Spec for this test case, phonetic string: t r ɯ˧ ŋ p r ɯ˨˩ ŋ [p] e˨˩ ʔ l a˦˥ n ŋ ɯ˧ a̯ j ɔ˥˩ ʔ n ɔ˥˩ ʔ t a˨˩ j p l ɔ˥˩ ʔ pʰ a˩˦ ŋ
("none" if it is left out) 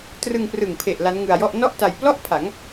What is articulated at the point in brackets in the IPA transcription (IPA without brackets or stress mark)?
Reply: pʰ